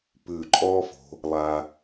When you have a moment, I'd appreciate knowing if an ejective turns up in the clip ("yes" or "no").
yes